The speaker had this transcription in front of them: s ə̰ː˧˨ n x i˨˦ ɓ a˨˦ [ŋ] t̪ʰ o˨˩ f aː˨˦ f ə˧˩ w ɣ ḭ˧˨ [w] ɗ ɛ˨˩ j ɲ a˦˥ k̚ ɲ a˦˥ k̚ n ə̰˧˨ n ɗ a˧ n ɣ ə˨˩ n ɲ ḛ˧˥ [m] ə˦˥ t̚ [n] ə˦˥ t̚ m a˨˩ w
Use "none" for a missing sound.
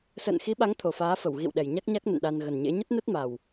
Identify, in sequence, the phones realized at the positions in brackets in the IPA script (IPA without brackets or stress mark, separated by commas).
ŋ, w, ɲ, n